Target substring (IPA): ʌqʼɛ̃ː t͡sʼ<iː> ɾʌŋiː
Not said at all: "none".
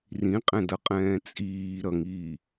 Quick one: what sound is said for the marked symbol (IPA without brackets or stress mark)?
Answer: iː